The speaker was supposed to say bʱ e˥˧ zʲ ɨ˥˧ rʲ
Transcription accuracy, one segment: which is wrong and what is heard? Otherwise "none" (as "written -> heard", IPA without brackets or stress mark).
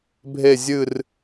rʲ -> r